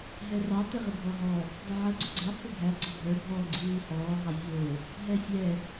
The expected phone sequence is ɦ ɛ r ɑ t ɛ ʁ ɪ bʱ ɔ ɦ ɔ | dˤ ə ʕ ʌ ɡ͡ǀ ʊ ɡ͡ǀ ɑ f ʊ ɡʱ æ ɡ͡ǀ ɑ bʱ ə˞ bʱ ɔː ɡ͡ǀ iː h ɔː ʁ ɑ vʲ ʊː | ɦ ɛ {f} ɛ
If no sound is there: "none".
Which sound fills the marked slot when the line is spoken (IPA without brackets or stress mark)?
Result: fʲ